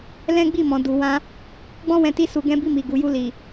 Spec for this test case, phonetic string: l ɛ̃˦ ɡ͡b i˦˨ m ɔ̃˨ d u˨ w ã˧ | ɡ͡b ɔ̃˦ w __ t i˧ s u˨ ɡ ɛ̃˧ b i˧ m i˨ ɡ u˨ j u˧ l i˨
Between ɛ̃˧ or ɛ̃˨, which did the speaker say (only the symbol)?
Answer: ɛ̃˧